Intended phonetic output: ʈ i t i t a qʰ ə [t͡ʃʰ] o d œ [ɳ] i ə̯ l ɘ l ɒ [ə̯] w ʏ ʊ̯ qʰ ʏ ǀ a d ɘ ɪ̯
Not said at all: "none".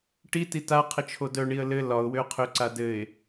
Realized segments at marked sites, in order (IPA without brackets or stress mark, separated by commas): t͡ʃʰ, ɳ, ʊ̯